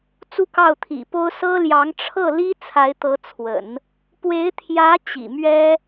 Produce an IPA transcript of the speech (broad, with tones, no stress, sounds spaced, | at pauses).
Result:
t͡s u˥ k ɑ˥˩ ʊ̯ t̪ʰ ḭ˨˩ p o˥ ʊ̯ s ɤ˥ l j ɑ˧˥ ŋ ʈ͡ʂʰ ɤ˥˩ l i˥ t͡sʰ a˧˥ ɪ̯ t̪ ɤ˧˥ t͡sʰ w ə̰˨˩˦ n | p w e˧˥ ɪ̯ t̪ʰ j ä˧˥ t͡ɕ ḭ˨˩ m ɥ ɛ˥